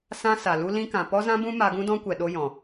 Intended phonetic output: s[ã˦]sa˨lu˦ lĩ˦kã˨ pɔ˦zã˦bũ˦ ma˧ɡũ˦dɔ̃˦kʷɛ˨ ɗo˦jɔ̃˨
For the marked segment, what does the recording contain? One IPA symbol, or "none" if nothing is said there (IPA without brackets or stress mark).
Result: ã˦